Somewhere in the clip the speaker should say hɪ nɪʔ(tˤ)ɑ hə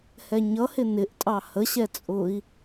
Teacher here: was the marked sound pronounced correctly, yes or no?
no